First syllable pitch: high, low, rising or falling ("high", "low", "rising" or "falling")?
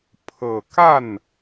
low